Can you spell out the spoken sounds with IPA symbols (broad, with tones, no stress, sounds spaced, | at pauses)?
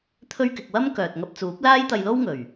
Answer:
t̪ʰ ɵ˥ ɥ k ɪ˧ k̚ w ɐ˥ m k œː˨ t̚ ŋ ɐ˧ p̚ t͡s uː˨˥ p̚ l aː˥ j t̪ ɐ˧ j l o˥ w ŋ ɵ˨˩ ɥ